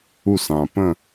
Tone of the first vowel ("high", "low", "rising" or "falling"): falling